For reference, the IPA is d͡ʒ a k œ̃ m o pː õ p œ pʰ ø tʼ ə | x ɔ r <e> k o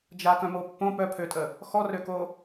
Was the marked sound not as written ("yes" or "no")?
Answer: yes